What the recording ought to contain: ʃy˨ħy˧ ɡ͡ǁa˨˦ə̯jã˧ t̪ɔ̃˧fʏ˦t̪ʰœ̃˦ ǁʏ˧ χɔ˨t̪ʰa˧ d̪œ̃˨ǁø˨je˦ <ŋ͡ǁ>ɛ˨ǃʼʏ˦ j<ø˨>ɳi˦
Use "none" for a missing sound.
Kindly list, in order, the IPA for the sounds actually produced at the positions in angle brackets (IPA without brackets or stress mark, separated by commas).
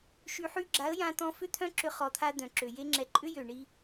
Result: ŋ͡ǁ, ø˨